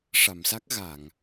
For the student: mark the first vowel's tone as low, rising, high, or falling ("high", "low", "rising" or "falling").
low